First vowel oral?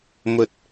yes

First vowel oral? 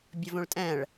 yes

